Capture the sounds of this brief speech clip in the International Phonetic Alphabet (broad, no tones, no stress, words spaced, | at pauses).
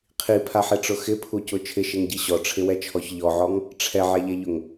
qʰipʰaħeʈ͡ʂʊ xɪpʰucʊ t͡ʃʰɪʃeŋɟi ɕɔʈ͡ʂʰɪwɛt͡ʃʰɔç ʎɔʕɔŋ | ʈ͡ʂʰɛʕɛʎeʎʊŋ